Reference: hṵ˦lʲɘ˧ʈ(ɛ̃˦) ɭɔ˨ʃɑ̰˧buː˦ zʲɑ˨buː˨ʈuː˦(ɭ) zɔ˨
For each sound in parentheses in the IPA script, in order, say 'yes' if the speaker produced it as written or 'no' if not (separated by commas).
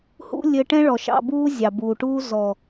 yes, no